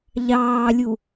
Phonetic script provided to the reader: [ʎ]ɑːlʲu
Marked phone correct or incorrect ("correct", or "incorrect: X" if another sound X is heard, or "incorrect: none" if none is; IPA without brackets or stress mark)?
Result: correct